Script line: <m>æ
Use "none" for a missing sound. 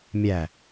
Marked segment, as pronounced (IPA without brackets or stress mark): mʲ